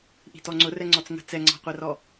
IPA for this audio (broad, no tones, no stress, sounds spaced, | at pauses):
ʔ i̤ t ɔ ŋ͡ǀ ʊ r ɛ ŋ͡ǀ ɔ t͡s ŋ ə̤ t͡s ɛ ŋ͡ǀ ɑ̤ qʷ ɛ r ɔ